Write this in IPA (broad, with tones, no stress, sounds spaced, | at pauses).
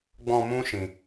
ɡ͡b ɔ̃˧ m ũ˦ ʃ ĩ˧